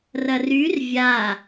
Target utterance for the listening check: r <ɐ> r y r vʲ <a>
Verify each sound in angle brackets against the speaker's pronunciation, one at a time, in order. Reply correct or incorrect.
correct, correct

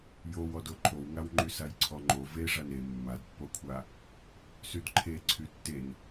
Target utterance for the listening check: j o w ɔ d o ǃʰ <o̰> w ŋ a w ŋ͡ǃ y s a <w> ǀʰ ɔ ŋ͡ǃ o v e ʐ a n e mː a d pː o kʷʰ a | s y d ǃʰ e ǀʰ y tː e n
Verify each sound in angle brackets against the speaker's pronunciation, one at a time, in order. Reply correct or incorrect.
incorrect, incorrect

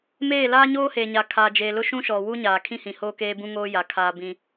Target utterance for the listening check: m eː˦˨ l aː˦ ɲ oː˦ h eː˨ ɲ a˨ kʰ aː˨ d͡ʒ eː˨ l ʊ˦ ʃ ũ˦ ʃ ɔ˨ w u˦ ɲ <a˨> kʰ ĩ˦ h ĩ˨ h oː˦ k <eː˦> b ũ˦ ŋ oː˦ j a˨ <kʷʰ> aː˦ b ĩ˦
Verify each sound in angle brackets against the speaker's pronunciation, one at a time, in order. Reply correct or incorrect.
incorrect, correct, incorrect

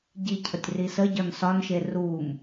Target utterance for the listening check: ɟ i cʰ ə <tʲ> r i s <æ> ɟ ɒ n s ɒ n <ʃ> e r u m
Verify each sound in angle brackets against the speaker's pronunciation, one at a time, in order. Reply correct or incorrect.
correct, incorrect, correct

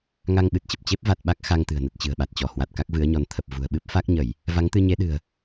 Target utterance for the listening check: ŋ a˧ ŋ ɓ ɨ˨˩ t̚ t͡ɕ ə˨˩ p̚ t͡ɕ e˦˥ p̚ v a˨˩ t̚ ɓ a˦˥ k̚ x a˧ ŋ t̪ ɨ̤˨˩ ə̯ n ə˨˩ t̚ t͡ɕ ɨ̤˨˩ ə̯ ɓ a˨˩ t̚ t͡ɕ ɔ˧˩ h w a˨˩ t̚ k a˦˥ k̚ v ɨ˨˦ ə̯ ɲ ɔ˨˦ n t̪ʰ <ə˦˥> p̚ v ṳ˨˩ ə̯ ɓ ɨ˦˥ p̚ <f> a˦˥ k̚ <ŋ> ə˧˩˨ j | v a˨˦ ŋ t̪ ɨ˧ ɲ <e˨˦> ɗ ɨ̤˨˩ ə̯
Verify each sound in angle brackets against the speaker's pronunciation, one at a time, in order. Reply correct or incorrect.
incorrect, correct, incorrect, correct

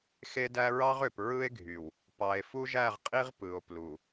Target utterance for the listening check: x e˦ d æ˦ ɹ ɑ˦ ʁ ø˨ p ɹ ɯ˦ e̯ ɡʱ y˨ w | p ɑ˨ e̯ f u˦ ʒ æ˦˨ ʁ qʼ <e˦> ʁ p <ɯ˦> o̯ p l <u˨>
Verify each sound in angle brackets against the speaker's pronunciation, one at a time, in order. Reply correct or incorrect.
incorrect, incorrect, correct

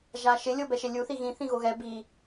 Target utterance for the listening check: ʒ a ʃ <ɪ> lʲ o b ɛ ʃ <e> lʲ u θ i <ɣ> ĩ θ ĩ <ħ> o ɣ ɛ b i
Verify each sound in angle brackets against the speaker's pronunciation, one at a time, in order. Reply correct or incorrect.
correct, correct, correct, incorrect

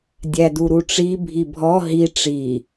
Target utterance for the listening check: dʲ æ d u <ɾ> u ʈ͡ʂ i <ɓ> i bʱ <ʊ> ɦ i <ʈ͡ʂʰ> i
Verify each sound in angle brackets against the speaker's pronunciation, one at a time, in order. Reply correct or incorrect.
correct, incorrect, incorrect, incorrect

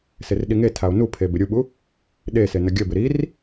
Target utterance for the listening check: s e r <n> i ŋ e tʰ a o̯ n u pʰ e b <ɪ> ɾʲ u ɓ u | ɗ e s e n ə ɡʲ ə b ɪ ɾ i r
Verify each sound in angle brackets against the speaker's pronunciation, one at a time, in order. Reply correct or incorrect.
incorrect, correct

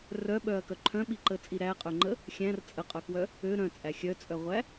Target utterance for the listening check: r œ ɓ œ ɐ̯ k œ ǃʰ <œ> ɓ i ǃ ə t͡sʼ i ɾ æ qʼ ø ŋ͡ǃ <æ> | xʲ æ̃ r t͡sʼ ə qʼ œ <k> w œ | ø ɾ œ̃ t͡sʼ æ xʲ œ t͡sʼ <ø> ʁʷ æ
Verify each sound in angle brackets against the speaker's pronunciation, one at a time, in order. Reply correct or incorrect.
incorrect, incorrect, correct, incorrect

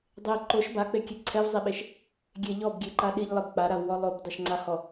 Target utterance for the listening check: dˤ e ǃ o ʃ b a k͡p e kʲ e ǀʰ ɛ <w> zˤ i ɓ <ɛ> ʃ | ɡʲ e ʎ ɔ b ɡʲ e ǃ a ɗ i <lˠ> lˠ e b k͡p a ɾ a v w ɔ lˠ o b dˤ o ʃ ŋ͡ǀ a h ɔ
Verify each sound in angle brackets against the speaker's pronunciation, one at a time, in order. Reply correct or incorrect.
incorrect, incorrect, incorrect

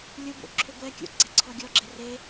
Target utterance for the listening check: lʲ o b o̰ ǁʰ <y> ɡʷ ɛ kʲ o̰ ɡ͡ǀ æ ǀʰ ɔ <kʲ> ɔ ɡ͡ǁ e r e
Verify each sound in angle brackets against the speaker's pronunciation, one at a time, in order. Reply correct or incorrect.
incorrect, incorrect

